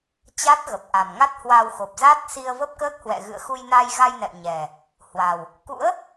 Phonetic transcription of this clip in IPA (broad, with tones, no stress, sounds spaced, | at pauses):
t͡ɕ a˦˥ t̚ ɣ ə˨˩ p̚ ʔ a˨˩ m ŋ a˦˥ t̚ h w a˧ w x o˨˩ p̚ z a˦˥ t̚ s i˧ ə̯ v ə˦˥ p̚ k əː˦˥ k̚ h w ɛ̰˧˨ ɣ ɨ̰˧˨ ə̯ x u˧ j n a˧ j ɣ a˧ j n ɛ̰˧˨ w ɲ ɛ˨˩ | h w a˨˩ w | k ṵ˧˥ ə̯